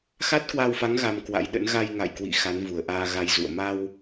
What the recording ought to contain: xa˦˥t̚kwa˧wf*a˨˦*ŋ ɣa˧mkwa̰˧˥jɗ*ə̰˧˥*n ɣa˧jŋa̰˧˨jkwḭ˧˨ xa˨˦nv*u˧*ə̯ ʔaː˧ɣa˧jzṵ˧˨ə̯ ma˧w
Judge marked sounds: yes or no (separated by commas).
yes, yes, no